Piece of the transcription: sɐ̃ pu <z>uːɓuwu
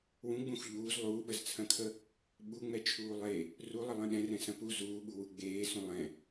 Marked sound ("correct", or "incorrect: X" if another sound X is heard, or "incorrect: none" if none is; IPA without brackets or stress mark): correct